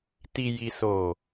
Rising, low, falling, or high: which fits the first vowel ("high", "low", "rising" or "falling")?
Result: low